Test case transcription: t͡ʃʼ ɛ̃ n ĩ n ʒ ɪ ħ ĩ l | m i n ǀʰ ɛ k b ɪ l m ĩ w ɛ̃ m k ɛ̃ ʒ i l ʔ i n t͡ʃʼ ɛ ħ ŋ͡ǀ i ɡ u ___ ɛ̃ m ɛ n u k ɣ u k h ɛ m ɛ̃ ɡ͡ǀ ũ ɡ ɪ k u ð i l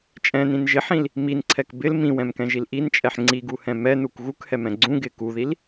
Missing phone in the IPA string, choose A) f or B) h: B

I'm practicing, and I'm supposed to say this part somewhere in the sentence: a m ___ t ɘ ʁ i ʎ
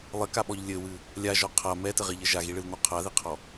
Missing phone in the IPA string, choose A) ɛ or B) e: A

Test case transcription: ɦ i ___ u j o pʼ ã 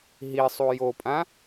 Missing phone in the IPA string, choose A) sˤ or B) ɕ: A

